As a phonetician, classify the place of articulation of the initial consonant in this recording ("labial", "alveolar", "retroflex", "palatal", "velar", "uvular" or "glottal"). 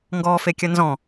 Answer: velar